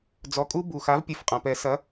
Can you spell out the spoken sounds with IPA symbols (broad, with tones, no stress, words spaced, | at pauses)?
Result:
d͡zɔ˩˥kʼu˦˥ bu˩xa˩˥v pʲɨ˩˧˩fqʼã˩ pɛ˨˩˦sɐ˩˥